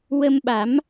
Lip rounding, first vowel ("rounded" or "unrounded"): unrounded